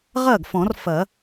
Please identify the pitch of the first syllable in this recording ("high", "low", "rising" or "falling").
falling